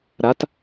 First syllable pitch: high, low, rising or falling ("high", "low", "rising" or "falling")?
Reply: rising